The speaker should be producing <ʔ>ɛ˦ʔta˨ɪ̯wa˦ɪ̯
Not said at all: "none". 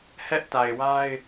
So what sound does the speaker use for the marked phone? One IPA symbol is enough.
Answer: h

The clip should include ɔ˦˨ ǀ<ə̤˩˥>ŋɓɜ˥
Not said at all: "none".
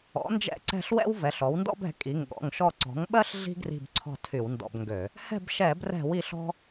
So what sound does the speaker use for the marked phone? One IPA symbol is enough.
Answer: ɔ̤˩˥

